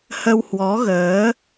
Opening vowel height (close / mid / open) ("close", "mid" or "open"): mid